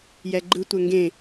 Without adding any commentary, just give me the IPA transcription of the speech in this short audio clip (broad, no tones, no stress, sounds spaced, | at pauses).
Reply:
j ɛ ɡ͡ǃ ɯ tʷ ɛ ŋ ɡ ẽ